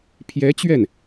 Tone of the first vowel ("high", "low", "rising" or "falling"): rising